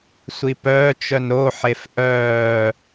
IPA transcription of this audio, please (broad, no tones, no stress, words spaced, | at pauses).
sʷipœːt͡ʃœn ɾoħef ʔœː